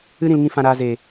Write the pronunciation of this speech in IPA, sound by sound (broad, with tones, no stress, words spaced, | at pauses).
ɨ˧ ɾĩ˧lŋĩ˧ fã˨ɾaː˨ ze˨